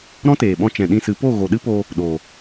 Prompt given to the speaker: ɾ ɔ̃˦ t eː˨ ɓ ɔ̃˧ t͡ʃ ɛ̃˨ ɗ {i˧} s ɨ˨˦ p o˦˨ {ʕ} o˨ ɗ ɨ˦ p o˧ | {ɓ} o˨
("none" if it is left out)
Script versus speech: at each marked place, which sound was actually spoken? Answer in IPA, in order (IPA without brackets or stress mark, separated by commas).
ĩ˧, ɣ, ɗ